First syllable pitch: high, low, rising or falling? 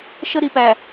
high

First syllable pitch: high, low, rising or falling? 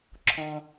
low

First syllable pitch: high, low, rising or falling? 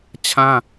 high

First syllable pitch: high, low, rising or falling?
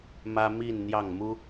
high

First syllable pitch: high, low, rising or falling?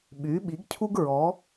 rising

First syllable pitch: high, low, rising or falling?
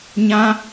high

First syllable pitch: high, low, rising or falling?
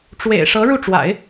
low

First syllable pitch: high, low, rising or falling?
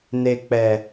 low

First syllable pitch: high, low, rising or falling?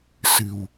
low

